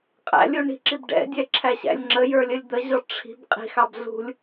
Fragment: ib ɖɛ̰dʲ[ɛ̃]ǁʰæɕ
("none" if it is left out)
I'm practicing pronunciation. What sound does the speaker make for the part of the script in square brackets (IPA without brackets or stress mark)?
ɛ